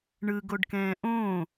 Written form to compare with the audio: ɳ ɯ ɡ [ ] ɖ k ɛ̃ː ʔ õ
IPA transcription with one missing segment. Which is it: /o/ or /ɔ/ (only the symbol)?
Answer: o